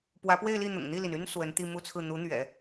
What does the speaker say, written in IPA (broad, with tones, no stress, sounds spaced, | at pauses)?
p w ä˧˥ p w e˥˧ ɪ̯ l i˥˩ n̪ ʊ̰˨˩ ŋ n̪ i˥˩ l i˩ n y˥ n s w ə˧˥ n t̪ i˥˧ m u˥˧ t͡sʰ ɹ̩˥˩ n̪ u˧˥ n̪ ɥ ɛ̰˨˩˦